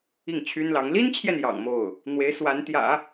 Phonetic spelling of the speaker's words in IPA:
i˥˩ ŋ t͡ɕʰ y˥ n l ɑ˧˥ ŋ l i˥ n t͡ɕʰ j ɛ˨ n j ɑ̰˨˩ ŋ m o˥˩ ʊ̯ | n̪ w e˧˥ ɪ̯ s w a˧˥ n t̪ j ä̰˨˩˦

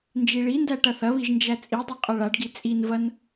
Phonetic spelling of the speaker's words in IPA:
n d͡ʒ i ɭ i n d æ ʈ ɐ θ ɐ β i ʒ n d͡ʒ æ t͡sʼ i dˤ i qʼ ɐ ɭ a ɖ ɡ i t͡sʼ i n v ɐ n

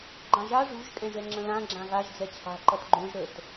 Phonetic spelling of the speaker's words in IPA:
ɡ͡ǃ ã ʒ a ʐ ṳ ʒ kʼ ɛ̃ ʒ ɛ ŋ͡ǁ ə̃ l ã ɡ͡ǁ ã ɣ a ʒ d͡z ɛ t͡ɕʰ a̤ ǃ ʌ t ɡ͡ǃ õ ʒ ɾ ə t

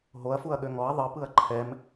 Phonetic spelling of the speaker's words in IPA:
ɦ o ɐ̯ f u ɐ̯ ɠ ø ŋ ɔ ɐ̯ ðˤ ɯ p ɯ ɐ̯ ǃʰ ɛ m

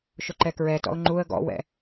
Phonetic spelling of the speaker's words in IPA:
ʃ ʊ ǃ ɛ k ɹ ɛ t ɔ̰ ʊ̯ ŋ͡ǃ u ə̯ ɡ ɔ̰ w ɛ̰

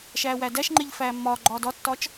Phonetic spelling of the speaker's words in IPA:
ʃ æː w æ d æ ʃ ŋ͡ǃ e ʎ f æː mː ɒ ɡ͡ǃ ɒː d ɒ tː ɒ t͡ʃ

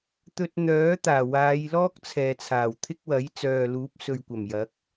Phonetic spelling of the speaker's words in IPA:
t̪ ɵ˧ t̚ n̪ œː˨˥ t̪ aː˨˩ w aː˨˧ j l ɔː˥ k̚ t͡sʰ ɛː˨ t͡sʰ aː˨˩ w t̪ʰ ɪ˥ k̚ w ɐ˨˥ j t͡s œː˨ l uː˨˥ p̚ s ɵ˨ ɥ kʷ ɐ˨˩ m j ɐ˨˥ k̚

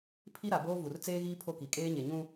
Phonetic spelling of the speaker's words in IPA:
pʰ i˦ ɾ a˨ b oː˦ v u˨ r t͡s eː˦ ɣ iː˦ pʰ o˦ k i˨ kʼ eː˦ ɲ e˨ ɲ ũ˦

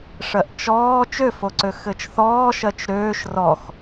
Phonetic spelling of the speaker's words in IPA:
ʂ ɜ ʔ t͡ʃ ɔː t͡ʃ ø f o ǀ ø x ɘ t͡ʃ θ ɔː ʃ ɜ t͡ʃ ɾ øː ʃ r ɔ x

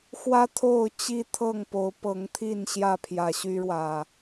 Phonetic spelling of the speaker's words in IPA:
x w ä˦ t̪ʰ o˥˨ ʊ̯ t͡ɕ i˦ t̪ʰ ɤ˥˨ ŋ p o˨˦ ʊ̯ p ɤ˨˦ ŋ t̪ʰ i˥˨ n ɕ j ä˥˨ pʰ j ä˨˩ ɕ y˦ ɻ w ä˨

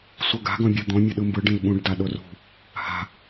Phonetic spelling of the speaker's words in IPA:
sʷ ɤ ɡ a̤ ɡ ɔ̃ bʲ ɤ d̪ ɔ̃ mʲ ɤ ɗ ɯ m b ɯ ɖ ĩ l ɓ ũ ɖ d a ɗ o r ṳ | h a̤

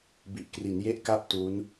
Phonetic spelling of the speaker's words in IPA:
b i˨˩ ʔ k r i˩˦ n j e˥˩ ʔ k a˥˩ p̚ t u˦˥ n

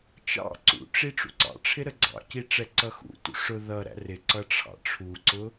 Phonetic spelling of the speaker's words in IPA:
t͡ʃ ɑ̰ ǀ ṵ ʈ͡ʂ i ʈ͡ʂ ṵ ǀ ɑ̰ ʈ͡ʂʰ ɪ ɾ ə ɡ͡ǀ ɑ̰ c i ʈ͡ʂ ɛ ǀ ʌ x ṵ t ṵ ʂ ʊ ð ʌ ɾ æ̰ r ɪ ǀ ʌ ʈ͡ʂʰ ɑ̰ ʈ͡ʂʰ u ǀ ʊ

